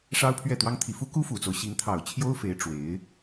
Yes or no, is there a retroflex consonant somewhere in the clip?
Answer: yes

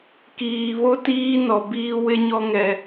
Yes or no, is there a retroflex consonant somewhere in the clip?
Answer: no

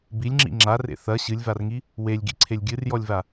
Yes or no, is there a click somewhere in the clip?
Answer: yes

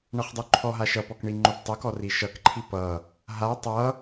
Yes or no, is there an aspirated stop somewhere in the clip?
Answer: yes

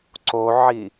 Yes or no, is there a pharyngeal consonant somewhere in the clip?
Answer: yes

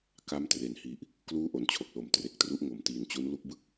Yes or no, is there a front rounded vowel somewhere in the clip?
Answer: no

